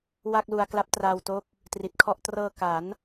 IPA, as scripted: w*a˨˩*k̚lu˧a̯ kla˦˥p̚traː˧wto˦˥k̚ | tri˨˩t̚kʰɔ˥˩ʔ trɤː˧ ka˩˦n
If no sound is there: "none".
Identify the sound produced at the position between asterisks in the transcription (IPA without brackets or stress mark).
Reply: a˥˩